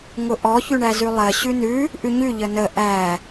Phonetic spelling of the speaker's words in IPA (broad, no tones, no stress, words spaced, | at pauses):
ŋʊʔɔ çʉɳæzʉlˠɜ ɕʉnʉ | ʔʉɲʉ ʎənə ʔæ